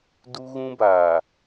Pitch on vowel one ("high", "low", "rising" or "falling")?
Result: high